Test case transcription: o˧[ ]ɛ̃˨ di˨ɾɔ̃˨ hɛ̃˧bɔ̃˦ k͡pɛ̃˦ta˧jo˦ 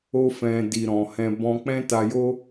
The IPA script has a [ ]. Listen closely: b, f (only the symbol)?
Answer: f